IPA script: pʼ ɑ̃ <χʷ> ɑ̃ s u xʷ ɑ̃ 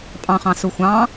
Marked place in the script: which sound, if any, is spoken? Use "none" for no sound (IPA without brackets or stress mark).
χ